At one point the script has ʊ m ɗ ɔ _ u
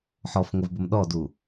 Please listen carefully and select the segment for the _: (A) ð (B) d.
B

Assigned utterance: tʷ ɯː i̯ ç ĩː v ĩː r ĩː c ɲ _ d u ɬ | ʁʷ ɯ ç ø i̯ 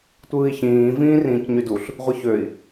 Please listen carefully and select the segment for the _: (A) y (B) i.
A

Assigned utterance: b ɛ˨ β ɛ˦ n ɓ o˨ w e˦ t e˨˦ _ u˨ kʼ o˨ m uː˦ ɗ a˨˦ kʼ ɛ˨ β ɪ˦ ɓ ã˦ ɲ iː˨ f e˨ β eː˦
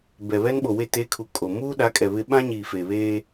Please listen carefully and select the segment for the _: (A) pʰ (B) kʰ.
B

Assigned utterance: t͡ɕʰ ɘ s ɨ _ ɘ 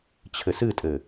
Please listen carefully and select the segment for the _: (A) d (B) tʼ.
B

